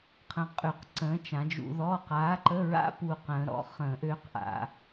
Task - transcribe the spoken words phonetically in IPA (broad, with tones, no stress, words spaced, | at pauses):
qʰə̃˧qʼy˧˩˧q ǀə̃ː˨˥t͡ʃã˩˧d͡ʒṵ˧ðɔ˧˥˧ qaː˨˥ǃə˧˥˧ɹa̰˦˥ pu˧qə̃ː˩˧ ɾɔ̰˨˥ χə̃ː˧˩˧ʔøː˦˥qʔa̰˧˩˧